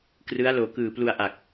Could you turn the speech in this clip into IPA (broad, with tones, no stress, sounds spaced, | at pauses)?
k r ɯ˦˥ a̯ l oː˨˩ k ɯː˨˩ p l u˧ a̯ ʔ a˨˩ k̚